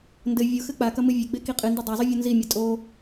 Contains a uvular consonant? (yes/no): yes